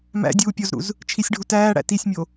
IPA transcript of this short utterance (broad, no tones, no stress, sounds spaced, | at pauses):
m æ̰ dʲ uː pʲ o z ɾ ṵ z | t͡ʃʰ i sʲ ɖʱ u t æː ɽ æ̰ t i sʲ mʲ o